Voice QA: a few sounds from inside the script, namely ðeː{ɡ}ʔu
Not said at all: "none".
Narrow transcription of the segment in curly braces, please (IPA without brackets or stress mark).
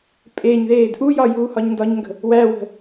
d